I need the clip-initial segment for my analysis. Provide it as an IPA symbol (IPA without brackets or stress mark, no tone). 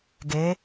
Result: ɡ